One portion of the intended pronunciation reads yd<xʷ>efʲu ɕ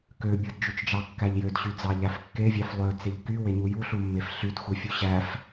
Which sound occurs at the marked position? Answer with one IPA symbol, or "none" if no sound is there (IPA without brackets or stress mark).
xʷ